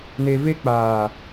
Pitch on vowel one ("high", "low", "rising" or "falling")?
low